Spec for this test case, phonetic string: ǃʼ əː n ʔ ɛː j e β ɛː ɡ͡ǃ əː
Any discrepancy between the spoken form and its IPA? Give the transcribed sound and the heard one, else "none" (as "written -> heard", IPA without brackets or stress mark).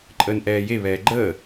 none